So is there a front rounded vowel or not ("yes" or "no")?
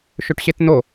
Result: yes